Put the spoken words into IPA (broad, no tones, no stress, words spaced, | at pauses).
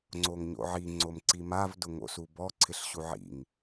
ŋ͡ǀoŋɲo̰ʕi ŋ͡ǀomǀimav dʊŋo̰subɔ ǀʰɪɬɕuʕḭŋ